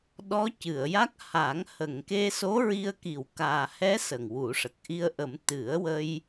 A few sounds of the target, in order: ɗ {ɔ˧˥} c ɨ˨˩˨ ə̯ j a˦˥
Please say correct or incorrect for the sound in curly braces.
correct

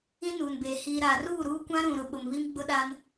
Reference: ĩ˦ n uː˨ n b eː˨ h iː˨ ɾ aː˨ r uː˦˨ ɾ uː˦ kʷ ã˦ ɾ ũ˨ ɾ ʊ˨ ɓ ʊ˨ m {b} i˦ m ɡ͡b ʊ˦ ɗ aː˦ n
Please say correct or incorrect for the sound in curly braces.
incorrect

